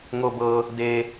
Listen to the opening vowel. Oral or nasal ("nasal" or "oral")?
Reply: oral